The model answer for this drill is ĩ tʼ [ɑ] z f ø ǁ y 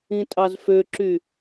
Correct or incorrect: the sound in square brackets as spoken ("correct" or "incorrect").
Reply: correct